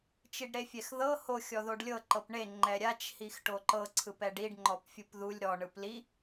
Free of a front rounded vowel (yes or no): yes